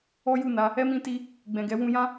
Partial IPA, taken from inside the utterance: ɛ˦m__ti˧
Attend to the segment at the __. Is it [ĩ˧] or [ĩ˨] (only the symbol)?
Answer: ĩ˧